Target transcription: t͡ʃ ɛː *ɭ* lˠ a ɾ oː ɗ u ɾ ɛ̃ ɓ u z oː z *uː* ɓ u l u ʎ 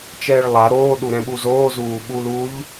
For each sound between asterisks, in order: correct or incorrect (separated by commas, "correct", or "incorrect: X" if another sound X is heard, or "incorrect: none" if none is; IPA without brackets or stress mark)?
correct, correct